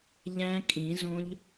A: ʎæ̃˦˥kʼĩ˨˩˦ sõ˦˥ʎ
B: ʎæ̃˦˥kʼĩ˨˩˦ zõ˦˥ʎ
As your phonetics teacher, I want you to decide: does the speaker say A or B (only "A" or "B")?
B